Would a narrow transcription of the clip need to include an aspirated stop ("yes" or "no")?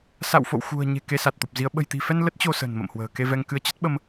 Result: no